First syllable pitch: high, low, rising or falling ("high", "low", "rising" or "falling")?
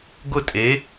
falling